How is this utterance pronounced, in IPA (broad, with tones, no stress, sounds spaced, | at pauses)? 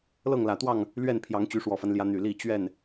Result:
l ɤ˥˨ ŋ l ä˨˩ t̪ w ɑ˥˨ ŋ | l ɥ ɛ˥˨ n pʰ j ɑ˨˦ ŋ t͡ɕ y˨˦ ʂ w ɔ˨˩ f a˦ n l j ä˨˦ n̪ y˨˩ l i˥˨ t͡ɕ ɥ ɛ˥˨ n